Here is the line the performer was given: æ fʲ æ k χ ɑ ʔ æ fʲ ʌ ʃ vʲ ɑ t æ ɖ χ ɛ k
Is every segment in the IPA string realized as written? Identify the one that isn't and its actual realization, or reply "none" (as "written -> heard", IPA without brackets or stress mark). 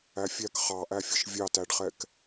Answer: none